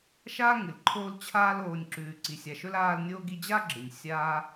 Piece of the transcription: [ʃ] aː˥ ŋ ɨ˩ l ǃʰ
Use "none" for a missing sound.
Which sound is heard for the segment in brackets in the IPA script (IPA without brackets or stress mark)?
ʃ